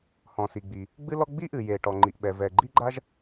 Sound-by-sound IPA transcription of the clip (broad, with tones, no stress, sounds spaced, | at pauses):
h ɔ̃˩ s i˩ ɡ͡b i˩ | ɡ͡b ɨ˥ l ɔ˥ ɡ͡b i˥ ʔ ɨ˩ j e˩ ʈ ɔ˩ ŋ͡ǃ i˩ ʔ ɓ ɛ˩ v ɛ˩ ɡ͡ǃ i˥ ɡ͡ǃ a˥ ʒ